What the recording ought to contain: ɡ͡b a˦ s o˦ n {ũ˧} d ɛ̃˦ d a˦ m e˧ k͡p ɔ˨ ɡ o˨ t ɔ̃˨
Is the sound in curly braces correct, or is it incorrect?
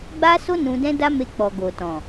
correct